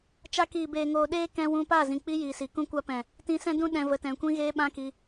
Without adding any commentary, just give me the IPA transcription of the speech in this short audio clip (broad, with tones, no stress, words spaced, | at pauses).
t͡ʃa˧kiː˨beː˨ ŋoː˨ɗeː˦ kɛ̃˧wũ˧pa˦˨ zĩ˨k͡pi˦ ji˨si˨ kũ˧kʷa˧pɛ̃˨ | tĩ˧sɛ̃˦dũ˦ ɗɛ̃˧ və˨tɛ̃˨ kʷĩ˧ɣeː˧ ɓã˦ki˧